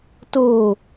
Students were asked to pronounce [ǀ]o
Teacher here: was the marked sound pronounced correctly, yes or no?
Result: no